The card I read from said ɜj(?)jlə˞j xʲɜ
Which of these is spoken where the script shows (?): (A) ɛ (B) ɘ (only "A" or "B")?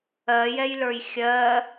A